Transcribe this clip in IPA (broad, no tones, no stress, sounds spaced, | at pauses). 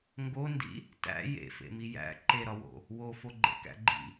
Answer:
ŋ ɡ o n d ḭ | t æ̰ j ḛ f ḛ m i j æ̰ ǃ e ɾ ɒ w o̰ | w o f o ɡ͡ǃ ḛ k æ̰ ɡ͡ǃ ḭ